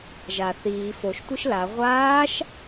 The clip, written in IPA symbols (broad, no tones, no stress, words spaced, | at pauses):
ʒa θiː foʃtʷɨʃ la ʁʷaːʃ